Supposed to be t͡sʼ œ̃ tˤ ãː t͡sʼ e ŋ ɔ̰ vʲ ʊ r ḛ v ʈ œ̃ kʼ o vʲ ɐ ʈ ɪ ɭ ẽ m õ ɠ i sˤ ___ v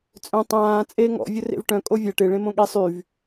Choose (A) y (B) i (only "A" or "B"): A